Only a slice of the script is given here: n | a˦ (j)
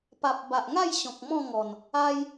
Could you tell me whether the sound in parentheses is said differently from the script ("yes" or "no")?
no